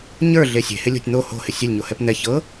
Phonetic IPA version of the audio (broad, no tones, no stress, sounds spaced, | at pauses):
ɲ ə˞ ɮ e sʲ e̤ h ɪ lʲ o̤ tʲ n̪ o h o̤ h ɪ sʲ e lʲ ɲ o h ɛ p n̪ ɛ ç ɤ